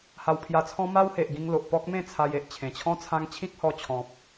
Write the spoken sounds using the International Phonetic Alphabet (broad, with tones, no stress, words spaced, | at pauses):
ha˧wpʰja˧t͡sʰɔ̃˦ ma˦whe˨ʔ ɡĩ˧ŋlo˨ʔ pɔ˦k̚mẽ˥˧ t͡sʰa˧je˨ʔ t͡ɕʰẽ˨˩t͡ɕʰɔ̃˦ t͡sʰã˦ŋ t͡ɕʰĩ˦k̚hɔ˧t͡ɕʰɔ̃˨p̚